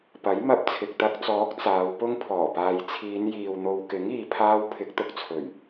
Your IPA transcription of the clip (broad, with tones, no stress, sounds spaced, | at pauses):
p ɐ˨˥ j m ɐ˧ p̚ t͡sʰ ɪ˨ k̚ t̪ ɐ˧ k̚ t͡s ɔː˨˥ k̚ t͡s aː˨˧ w p ʊ˥ ŋ pʰ ɔː˨˩ p aː˨ j t͡sʰ iː˨˧ n j iː˨ w n̪ o˨ w k ɪ˨˥ ŋ iː˨ pʰ aː˧ w pʰ ɪ˨˥ k̚ t̪ ʊ˨ k̚ t͡sʰ ɵ˨˩ ɥ